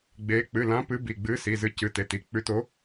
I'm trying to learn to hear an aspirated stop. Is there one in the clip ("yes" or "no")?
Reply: no